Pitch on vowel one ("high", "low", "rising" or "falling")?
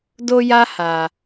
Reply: high